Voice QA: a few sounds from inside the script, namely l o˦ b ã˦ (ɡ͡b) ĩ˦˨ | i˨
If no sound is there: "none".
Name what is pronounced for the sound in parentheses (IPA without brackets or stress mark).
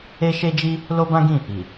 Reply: ɡ